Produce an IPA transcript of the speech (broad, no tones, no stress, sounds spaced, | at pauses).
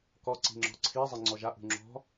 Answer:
k ɔ ǀ i̤ ŋ͡ǁ ɔ̤ ǀʰ i zˤ i ŋ͡ǀ ɔ ʒ a ʔ ṳ ŋ͡ǁ ɔ̤